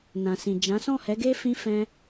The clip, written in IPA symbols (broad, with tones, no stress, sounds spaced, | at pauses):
n ã˨ s ĩ˨ d͡ʒ ã˨˦ s ɔ̃˦˨ h ɛ˨˦ ɡ e˦ f ĩ˦ f ɛ̃˦